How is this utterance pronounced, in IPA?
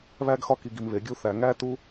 βæ˧ɡ xɒ˧ki˨ɡi˨mβe˨ ɡʲu˧θæ˨ŋæ˦ tu˦

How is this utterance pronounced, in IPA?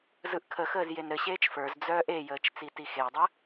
zɯʔkʰəxəːz jenɾɘɕeːt͡ʃ fə˞z d͡zœːʔejəːt͡ʃ t͡sitixejdˤə

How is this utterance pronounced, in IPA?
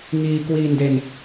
ŋiː˧ kwiː˧nde˧n

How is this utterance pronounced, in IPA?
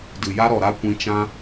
dɨ˨ja˦ɾɔ˨ɾa˦ kʷĩ˧t͡ʃã˦

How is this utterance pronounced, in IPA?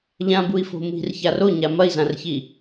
ʎãbui̯fo̤ mi̤rçar oɲa mɐi̯zãrçi

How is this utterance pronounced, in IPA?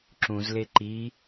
ǁũz leǃi

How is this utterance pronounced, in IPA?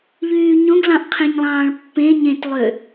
ʎyːɲõɡlɑ̃ʔ qʰẽɲlˠɑ̃ːɭpːẽ ɲẽt lˠø

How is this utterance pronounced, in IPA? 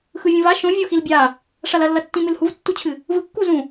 xɯvʲũva ʃõvʲo xilbʲa | ʂalɐlːɐtːĩ mɨlhuvtːut͡ɕʰɨ | vɯkːuzũ

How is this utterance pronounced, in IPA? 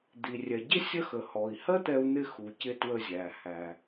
d̪i˩rʲɛ˩ɟɪ˥ sʲə˥xə˩ hɔ˩i̯hɜ˥t̪ɛ˧u̯n̪ɪ˧ xu˩cɪ˧ twə˧zʲæ˩hæ˩

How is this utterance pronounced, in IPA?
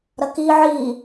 ɾɐki ʕi

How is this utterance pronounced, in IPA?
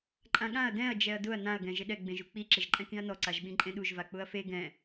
ǃʼãɠãɐ̯ dɛ̃ɐ̯ d͡ʒɛɐ̯dʊɐ̯ nãɐ̯ ɡɛ̃ʒɪɗɛ ɡ͡bẽʒuk͡pi ǁɪʒǃʼɛ̃kĩɐ̯nɔ ǀaʒɓĩǃʼẽɗuʒ vak͡pʊɐ̯fe ɡɛ̃

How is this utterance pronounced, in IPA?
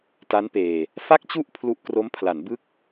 ta˦˥npeː˧ | fa˥˩k̚t͡ɕu˥˩ʔ pʰlu˦˥ʔkro˦˥mpʰla˩˦n bɯ˥˩k̚

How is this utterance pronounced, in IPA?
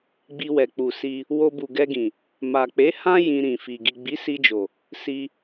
ɡ͡bi˧wɛ˨k͡pu˨si˧ | wo˧bu˨ɡɛ˧ɡĩ˨ | ma˨k͡pe˨˦ hã˦ jĩ˧ɾĩ˨fi˨ ɡi˨ɡ͡bi˨˦si˧d͡ʒo˨ | si˧

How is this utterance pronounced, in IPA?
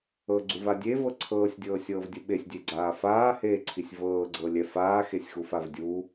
ɤɡ͡ǀuva dʲevɤ ǀʰɤːsʲdʲɤːsʲɤːvdʲu ɓesʲdʲeɡ͡ǀaː faːheːǀʰisʲ vɤːɡ͡ǀɤlʲɛ faːxesʲxufav dʲu

